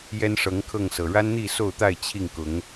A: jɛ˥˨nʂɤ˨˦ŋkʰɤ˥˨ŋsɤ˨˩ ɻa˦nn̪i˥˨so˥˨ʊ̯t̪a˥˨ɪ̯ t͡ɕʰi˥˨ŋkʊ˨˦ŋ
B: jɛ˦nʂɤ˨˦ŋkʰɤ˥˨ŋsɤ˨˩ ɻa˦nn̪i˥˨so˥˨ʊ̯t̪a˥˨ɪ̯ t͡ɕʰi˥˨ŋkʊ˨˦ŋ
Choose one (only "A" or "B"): B